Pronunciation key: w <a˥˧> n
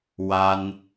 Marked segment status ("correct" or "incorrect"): incorrect